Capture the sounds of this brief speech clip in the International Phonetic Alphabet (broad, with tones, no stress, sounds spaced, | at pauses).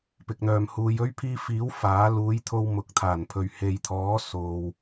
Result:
p ɪ˨ k̚ n̪ œː˨ m h uː˨˧ j ɵ˥ ɥ pʰ iː˧ f iː˨˥ w f aː˨˥ l uː˨˥ j t̪ʰ o˧ w m ʊ˨˥ k̚ t̪ʰ aː˨˩ n pʰ ɵ˨ ɥ h e˨ j t̪ʰ ɔː˨˥ s o˨ w